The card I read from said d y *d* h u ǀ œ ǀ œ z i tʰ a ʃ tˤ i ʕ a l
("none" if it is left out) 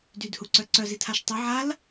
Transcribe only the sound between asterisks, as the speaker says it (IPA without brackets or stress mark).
d